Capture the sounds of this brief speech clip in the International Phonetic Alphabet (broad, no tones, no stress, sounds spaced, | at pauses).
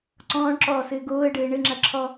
ǀ ɔ̃ː ɳ ǁ ɔː s ɘː ɡ oː ə̯ ɖ ɘː ɳ ɘ ŋ͡ǁ ɐ ǁʰ ɔ